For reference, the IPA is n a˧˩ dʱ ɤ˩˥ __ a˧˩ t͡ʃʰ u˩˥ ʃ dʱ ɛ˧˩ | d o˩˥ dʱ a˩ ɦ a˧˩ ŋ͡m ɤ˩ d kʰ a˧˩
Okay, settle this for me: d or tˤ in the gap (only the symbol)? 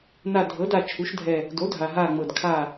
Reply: d